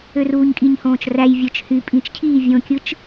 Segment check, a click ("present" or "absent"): absent